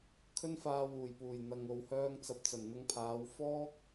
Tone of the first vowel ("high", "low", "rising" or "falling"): high